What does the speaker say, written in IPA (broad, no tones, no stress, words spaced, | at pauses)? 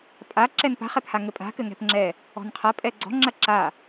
pʼa ǁɛnpa̤χ ɛphaŋɘpʼa̤ kɘŋɛ̤pŋ͡ǁɛ | ɔ̤nqʰɐ pʼɛɡ͡ǀɔ̤ ŋ͡ǁɐǁa